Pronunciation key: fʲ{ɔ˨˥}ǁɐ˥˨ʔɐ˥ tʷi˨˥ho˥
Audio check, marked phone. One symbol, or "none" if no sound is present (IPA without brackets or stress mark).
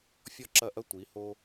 ɔ˥˨